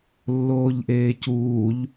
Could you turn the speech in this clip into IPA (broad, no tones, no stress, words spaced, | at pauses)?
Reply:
lːoːʎʔeːcuːʎ